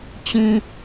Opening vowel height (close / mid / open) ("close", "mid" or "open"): close